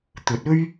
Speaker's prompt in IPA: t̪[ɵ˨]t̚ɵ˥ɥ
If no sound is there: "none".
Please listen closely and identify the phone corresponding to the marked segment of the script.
ɵ˨˥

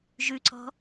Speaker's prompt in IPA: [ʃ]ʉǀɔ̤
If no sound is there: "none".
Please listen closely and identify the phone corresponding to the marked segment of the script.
ʒ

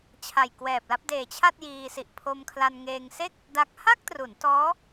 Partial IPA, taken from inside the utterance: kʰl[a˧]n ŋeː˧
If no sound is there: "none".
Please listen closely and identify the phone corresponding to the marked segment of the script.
a˧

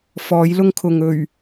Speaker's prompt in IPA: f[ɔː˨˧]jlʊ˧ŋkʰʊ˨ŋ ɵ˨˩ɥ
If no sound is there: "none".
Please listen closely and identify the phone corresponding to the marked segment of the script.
ɔː˨˧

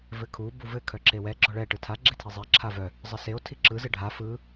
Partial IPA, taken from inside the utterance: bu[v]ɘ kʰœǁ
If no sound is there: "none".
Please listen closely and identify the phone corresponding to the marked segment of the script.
v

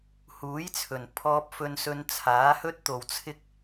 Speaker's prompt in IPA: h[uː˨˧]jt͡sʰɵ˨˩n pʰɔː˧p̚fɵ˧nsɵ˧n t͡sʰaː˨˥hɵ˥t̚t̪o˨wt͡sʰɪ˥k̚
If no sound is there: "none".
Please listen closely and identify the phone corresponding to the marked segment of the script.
uː˨˥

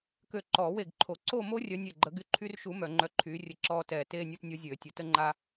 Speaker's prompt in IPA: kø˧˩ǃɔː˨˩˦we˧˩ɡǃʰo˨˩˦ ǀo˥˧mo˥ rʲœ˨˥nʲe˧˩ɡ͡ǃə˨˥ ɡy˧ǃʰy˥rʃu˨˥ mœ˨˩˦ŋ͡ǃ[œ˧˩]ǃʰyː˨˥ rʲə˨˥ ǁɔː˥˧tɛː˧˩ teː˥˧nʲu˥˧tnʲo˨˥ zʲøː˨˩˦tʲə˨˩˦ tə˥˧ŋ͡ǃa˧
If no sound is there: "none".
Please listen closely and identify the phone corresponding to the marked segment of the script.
œ˧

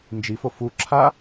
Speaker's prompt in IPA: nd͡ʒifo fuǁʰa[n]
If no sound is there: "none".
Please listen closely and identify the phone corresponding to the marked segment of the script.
none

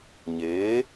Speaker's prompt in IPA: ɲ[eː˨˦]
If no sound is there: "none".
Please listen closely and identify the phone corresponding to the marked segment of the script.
eː˨˦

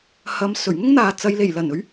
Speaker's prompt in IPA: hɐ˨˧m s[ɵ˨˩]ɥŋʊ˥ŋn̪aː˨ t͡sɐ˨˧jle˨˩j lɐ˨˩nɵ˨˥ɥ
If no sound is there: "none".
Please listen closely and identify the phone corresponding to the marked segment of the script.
ɵ˨˩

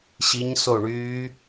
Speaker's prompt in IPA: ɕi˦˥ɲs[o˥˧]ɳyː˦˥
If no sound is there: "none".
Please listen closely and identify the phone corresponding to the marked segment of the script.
o˥˧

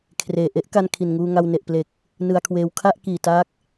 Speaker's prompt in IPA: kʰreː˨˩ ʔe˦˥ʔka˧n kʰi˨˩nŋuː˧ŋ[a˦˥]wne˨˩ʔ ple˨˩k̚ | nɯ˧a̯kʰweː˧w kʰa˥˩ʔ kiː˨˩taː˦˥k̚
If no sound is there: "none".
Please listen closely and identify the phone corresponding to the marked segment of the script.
a˧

